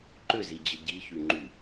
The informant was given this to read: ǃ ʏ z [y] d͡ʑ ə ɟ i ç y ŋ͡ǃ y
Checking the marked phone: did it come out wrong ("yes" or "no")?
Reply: yes